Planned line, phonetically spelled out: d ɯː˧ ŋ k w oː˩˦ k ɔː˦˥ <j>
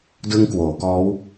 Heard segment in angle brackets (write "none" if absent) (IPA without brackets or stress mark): w